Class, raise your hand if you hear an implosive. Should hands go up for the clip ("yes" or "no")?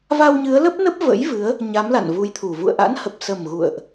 no